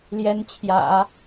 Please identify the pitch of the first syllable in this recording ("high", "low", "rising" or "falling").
rising